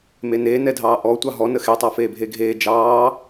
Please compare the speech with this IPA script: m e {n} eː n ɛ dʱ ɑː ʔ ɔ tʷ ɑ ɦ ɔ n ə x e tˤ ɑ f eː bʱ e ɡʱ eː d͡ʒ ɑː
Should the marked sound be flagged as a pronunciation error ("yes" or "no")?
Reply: no